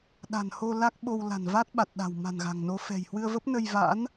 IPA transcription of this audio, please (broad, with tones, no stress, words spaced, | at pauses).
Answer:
ɗa̤˨˩nho˧ la˦˥k̚ɓo˧w la̤˨˩nva˦˥t̚ɓa˨˩t̚ɗa̤˨˩w ma̤˨˩nɣa̤˨˩ŋno˨˦ fɛ̤˨˩jhwɨ˧ə̯və˦˥p̚ nə˧jva̰˧˥n